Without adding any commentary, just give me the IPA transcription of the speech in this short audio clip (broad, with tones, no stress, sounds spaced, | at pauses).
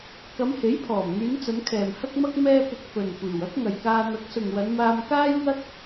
k ɐ˨˧ m h e˨˥ j pʰ ɔː˨˩ m ŋ yː˨˧ n t͡s ɐ˨˧ n kʰ ɛː˨ m h ɐ˥ k̚ m ɐ˥ k̚ m ɛː˥ p ɪ˧ k̚ f ɵ˨ n kʷ iː˨˩ w ɐ˥ k̚ ŋ ɐ˨ j k aː˧ n̪ ɐ˨˥ k̚ s ʊ˨ ŋ w ɐ˨˧ n m aː˧ m k aː˥ j ŋ ɐ˥ k̚